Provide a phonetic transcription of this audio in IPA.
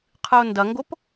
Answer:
qʰ ɨ ʊ̯ n d ɐ ŋ ɡ o p

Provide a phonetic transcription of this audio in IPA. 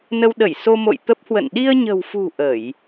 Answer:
n ə˧ w ɗ ə˧˩ j s o˧ m o̰˧˨ j t̪ ə˦˥ p̚ h w ə̰˧˨ n ɗ i˧ ə̯ ɲ ə̤˨˩ w f ṳ˨˩ ʔ ə˧˩˨ j

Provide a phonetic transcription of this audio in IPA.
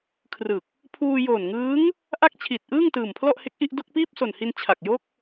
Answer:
kʰ r ɯ˨˩ k̚ | pʰ uː˧ j oː˨˩ n ŋ ɯː˦˥ ŋ | ʔ a˥˩ k̚ t͡ɕʰ i˨˩ t̚ ʔ ɯː˥˩ ŋ t ɯː˨˩ m pʰ l ɔ˥˩ ʔ h e˦˥ k̚ ʔ i˥˩ ʔ d o˥˩ k̚ p iː˥˩ p̚ s o˨˩ n h i˧ n t͡ɕʰ a˨˩ k̚ j o˥˩ k̚

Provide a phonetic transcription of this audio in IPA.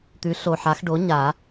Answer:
t̪ ʉ˩˥ ɬ o˨˩ ħ a˨˩˦ x ɖ o˩˥ ɲ a˨˩˦

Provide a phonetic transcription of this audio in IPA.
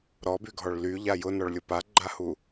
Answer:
ɾ ɔ b y ɡʱ ɔ ɭ l y ʎ a j ʊ n ɔ ɭ lʲ ʊ p a ɡ͡ǃ a h u

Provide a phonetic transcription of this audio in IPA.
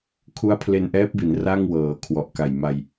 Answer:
kʰ u˦˥ a̯ pʰ l e˧ n ʔ ɛː˦˥ p̚ b i˩˦ n r a˥˩ ŋ w ɤː˩˦ kʰ w ɔ˨˩ ʔ k a˨˩ j m a˧ j

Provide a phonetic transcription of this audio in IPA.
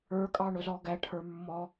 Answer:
ə˞ kʼ ɑ ɳ ʊ z ɔ ɡ æ ʈʰ ə˞ mː ɔ

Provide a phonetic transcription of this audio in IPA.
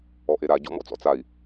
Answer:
ɔ ʔ e ɾ a ɟ ɔ̰ m ɔ̰ t͡s ɔ̰ t͡s a i̯

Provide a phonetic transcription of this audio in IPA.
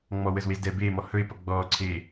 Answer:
ŋ͡m ɔ w ə z w e z d ɛː b eː m ɔ h ɵ ɪ̯ p ʌ ɡ͡b ɔː ǀʰ eː

